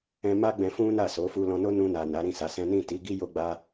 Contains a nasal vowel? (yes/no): yes